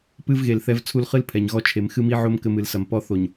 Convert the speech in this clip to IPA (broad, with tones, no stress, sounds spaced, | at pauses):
p ɨ˦ v ɣ e˨ l θ ɛ˦ v t͡sʰ u˦ l χ ɨ˦ l pʰ ɛ˨ ɲ ɣ ɔ˦ t͡ʃʰ e˨ m x ɨ˦ m i˦ ʕ o˦ m k ɘ˦ m ɨ˨ l s ɐ˨ m p ɔ˦ θ o˨ ɲ